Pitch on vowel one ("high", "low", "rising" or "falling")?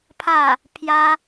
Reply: falling